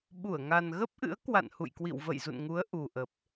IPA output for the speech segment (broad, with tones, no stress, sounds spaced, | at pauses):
ɓ u˧˩ ə̯ ŋ a˨˩ n ɣ ə˦˥ p̚ ʔ ɨ̰˧˥ ə̯ k w a̰˧˨ n h ṵ˧˨ j k w ḭ˧˨ w v ə̰˧˨ j z ṵ˧˨ n ŋ u˨˦ ə̯ ʔ u˨˩ ʔ ə˨˩ p̚